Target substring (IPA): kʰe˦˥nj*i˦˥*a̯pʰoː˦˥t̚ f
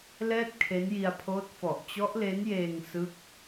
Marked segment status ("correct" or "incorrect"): incorrect